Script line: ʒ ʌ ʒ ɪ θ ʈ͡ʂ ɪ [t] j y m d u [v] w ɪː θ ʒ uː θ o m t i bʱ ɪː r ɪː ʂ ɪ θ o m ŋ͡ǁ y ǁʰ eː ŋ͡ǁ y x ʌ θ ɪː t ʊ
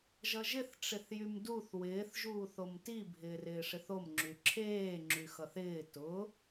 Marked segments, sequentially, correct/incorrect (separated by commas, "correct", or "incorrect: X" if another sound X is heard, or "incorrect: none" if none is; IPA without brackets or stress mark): incorrect: θ, incorrect: θ